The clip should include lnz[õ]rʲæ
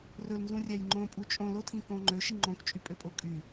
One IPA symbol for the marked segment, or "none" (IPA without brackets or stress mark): ũ